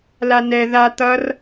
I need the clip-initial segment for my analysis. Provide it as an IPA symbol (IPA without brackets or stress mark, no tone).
l